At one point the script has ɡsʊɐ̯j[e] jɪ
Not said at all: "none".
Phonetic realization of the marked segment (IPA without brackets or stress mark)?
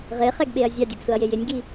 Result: e